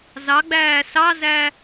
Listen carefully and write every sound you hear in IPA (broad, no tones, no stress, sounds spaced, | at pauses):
z ɑ ɡ͡b æː s ɑ z æ